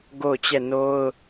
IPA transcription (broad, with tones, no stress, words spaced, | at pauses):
ɡo˦˨ʊ̯t͡ɕɛ˦˨ no˦ʊ̯